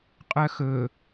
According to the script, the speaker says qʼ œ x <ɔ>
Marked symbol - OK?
no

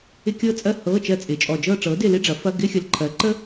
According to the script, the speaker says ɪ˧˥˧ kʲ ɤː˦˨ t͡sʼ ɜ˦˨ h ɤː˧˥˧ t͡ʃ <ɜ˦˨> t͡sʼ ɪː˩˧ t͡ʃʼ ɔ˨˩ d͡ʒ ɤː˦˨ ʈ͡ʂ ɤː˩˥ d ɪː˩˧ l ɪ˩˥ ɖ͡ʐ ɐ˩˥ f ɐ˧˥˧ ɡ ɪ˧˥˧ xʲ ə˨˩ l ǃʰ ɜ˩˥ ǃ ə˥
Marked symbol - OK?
yes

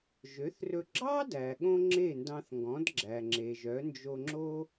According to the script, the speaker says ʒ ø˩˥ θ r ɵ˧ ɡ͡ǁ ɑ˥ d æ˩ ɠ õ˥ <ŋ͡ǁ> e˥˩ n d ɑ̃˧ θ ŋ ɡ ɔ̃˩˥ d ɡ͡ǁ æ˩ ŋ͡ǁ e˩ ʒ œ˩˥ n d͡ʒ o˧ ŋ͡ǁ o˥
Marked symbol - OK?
yes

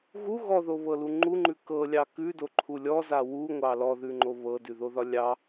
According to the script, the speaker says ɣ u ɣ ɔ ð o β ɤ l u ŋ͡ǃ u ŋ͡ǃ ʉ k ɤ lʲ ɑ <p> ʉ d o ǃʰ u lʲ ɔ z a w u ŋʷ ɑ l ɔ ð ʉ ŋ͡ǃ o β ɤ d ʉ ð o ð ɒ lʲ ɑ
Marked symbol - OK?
no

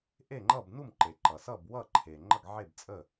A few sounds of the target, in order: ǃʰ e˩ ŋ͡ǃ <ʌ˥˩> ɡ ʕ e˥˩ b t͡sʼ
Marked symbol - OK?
yes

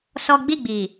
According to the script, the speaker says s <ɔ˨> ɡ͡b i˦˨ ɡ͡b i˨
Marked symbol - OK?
no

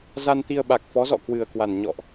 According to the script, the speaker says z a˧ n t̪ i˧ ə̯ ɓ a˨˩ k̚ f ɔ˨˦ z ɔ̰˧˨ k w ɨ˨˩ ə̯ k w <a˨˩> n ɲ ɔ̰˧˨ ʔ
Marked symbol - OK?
yes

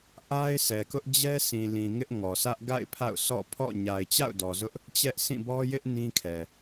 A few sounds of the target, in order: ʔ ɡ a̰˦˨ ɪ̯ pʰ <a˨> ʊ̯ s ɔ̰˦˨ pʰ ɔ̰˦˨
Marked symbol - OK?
no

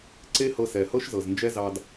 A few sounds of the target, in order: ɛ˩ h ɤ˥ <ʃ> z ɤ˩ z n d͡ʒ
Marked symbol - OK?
yes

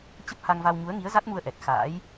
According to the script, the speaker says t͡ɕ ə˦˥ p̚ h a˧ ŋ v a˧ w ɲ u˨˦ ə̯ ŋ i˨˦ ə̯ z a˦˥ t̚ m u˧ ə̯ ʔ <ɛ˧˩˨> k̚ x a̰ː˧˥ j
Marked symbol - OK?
no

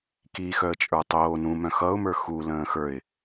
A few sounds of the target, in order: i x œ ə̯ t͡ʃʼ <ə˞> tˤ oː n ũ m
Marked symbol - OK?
yes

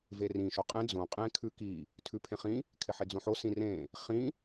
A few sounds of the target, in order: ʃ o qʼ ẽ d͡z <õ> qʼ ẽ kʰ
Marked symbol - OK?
yes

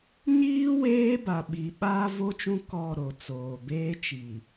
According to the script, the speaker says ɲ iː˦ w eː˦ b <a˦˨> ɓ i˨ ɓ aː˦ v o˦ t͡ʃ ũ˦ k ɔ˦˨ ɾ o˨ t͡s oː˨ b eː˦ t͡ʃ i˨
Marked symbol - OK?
no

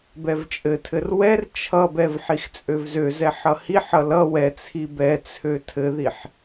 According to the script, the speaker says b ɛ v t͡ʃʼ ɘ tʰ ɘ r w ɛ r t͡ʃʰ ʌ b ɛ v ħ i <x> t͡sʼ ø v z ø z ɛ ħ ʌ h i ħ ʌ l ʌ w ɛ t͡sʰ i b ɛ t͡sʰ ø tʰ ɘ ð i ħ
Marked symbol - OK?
yes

